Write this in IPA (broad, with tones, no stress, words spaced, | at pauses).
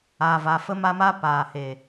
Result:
a˨va˨ fə˦ma˦ma˦ paː˨ he˨